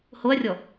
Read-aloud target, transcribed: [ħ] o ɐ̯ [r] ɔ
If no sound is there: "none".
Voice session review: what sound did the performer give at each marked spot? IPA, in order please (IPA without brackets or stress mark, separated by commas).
h, rʲ